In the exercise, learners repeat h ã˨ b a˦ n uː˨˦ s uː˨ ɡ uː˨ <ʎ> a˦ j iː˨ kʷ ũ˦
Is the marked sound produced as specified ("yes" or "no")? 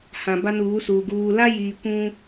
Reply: no